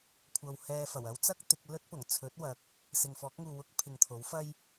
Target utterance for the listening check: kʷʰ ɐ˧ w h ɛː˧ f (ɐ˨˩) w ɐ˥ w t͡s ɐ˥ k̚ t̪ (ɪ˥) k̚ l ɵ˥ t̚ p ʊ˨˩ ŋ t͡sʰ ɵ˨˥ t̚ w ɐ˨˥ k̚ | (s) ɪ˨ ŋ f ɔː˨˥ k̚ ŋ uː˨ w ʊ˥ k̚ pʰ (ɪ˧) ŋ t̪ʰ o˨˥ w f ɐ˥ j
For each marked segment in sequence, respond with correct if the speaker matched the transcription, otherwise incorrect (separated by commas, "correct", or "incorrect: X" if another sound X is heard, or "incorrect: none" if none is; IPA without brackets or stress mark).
correct, incorrect: ɪ˨˥, correct, incorrect: ɪ˨